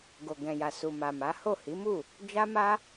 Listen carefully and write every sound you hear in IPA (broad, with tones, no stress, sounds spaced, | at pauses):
ɡ o˨ ɡ ɛ̃˨ j a˨ s u˨ m a˨ m a˨˦ h o˦˨ h i˨˦ m u˦˨ | d͡ʒ a˦ m a˦